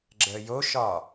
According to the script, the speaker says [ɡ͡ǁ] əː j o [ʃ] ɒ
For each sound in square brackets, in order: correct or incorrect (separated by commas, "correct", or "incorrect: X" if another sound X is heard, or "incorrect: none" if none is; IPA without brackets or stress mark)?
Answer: correct, correct